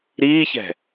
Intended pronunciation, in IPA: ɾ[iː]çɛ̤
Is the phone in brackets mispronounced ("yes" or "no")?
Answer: no